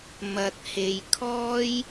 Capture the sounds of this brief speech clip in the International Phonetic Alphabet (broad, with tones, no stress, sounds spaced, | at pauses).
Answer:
m ɐ˨ t̚ h e˨ j kʰ ɔː˥ j